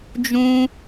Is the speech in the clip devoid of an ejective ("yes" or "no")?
yes